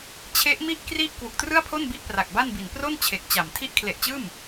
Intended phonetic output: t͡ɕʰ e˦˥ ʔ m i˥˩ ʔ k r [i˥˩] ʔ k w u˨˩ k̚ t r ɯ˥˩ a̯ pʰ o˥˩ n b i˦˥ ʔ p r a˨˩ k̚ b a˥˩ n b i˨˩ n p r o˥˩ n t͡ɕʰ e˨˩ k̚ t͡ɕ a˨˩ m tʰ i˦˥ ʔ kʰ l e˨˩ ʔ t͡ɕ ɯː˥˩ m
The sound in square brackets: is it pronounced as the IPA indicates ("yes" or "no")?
yes